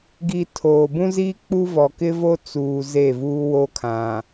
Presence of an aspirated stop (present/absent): present